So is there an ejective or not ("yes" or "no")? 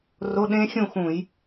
no